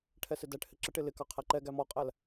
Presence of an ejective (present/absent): present